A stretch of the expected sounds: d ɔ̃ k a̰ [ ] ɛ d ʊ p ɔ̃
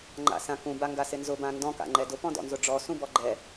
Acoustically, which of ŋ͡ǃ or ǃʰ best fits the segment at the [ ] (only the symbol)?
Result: ŋ͡ǃ